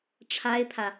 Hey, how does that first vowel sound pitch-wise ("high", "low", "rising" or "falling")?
high